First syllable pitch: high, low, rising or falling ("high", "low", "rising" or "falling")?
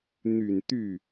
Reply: low